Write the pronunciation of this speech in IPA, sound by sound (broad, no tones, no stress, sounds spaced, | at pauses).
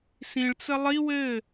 s ĩ ɭ t͡s ə lˠ i w ɘ